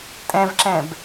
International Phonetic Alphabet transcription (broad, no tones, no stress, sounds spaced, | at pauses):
tʼ ɛ̃ v ǁ ɛ̃ b